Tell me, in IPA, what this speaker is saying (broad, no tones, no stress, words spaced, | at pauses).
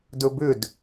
dɵbʏd